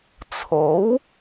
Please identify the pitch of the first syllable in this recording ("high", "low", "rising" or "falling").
rising